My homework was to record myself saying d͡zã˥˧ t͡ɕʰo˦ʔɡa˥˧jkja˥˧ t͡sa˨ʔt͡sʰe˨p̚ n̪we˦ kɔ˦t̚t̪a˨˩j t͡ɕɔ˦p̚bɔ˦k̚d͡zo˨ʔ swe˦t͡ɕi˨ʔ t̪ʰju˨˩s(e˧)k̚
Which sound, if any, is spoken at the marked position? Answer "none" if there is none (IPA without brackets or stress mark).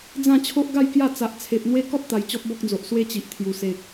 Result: e˨